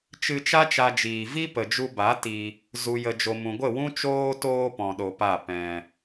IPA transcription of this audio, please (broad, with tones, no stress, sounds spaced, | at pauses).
t͡ʃ ɨ˧ t͡ʃ a˦ t͡ʃ a˦ d͡ʒ iː˧ v i˦ p ə˨ d͡ʒ u˧ b a˨˦ t i˧ | z u˨ j ə˨ d͡ʒ o˨ m ũ˨ ɡʷ ə˦˨ w ũ˦ t͡ʃ oː˧ t oː˧ p ɔ̃˧ ɗ o˧ p a˦˨ p ɛ̃˨